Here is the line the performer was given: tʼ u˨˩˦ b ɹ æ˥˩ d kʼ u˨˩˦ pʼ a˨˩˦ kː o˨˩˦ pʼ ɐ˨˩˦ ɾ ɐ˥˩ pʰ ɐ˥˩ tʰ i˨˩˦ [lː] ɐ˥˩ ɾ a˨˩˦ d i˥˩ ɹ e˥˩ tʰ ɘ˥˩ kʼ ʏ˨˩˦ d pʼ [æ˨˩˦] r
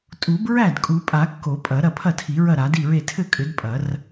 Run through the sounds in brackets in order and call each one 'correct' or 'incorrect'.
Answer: incorrect, incorrect

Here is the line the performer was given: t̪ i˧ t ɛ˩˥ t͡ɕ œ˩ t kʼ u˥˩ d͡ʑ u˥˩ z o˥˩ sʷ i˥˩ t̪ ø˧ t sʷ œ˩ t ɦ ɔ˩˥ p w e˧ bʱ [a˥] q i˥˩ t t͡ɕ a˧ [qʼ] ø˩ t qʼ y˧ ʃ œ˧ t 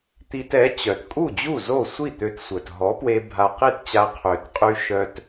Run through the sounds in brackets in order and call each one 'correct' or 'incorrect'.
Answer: incorrect, incorrect

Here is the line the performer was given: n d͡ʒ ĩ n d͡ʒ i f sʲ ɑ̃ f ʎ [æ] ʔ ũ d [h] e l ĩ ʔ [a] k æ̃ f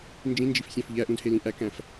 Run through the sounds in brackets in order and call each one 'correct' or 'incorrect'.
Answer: correct, correct, incorrect

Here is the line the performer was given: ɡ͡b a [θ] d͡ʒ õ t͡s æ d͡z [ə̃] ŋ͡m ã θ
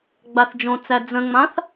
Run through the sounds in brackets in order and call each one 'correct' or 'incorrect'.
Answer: correct, correct

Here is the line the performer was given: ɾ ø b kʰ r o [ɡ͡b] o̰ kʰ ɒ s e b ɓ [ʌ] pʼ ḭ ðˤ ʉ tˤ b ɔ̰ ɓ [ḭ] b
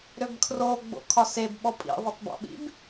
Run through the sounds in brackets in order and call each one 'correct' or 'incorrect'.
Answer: correct, incorrect, correct

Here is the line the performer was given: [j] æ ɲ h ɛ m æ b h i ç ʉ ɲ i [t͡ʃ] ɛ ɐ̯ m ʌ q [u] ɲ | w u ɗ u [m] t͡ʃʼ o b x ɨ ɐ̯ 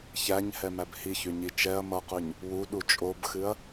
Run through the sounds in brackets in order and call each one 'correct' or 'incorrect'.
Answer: incorrect, correct, incorrect, incorrect

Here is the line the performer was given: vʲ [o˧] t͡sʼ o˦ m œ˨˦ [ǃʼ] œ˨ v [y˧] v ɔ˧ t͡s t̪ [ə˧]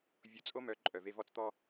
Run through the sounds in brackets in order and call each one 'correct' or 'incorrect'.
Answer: correct, correct, incorrect, incorrect

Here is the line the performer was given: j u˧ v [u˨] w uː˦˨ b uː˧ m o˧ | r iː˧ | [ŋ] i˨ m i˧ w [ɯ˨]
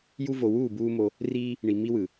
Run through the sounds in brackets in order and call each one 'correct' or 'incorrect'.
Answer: incorrect, incorrect, correct

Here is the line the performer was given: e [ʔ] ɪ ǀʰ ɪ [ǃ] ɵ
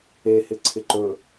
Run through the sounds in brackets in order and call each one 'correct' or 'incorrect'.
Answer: incorrect, correct

